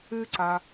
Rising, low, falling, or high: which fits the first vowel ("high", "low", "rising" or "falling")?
high